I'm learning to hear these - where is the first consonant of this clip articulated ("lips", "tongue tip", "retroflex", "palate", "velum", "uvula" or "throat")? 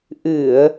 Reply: throat